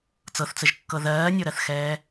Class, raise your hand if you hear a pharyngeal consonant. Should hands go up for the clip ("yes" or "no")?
no